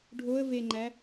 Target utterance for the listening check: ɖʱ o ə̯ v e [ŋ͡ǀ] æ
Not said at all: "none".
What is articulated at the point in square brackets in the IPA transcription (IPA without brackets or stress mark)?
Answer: ŋ͡ǃ